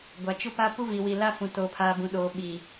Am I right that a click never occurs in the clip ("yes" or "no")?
yes